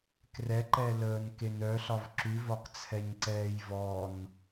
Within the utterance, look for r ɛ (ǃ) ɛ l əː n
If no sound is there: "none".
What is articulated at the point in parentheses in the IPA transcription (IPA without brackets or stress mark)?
ǃ